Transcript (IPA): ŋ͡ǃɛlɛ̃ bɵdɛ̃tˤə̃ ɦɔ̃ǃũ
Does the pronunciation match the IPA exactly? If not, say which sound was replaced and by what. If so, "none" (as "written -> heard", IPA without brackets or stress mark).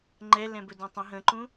ɔ̃ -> ə̃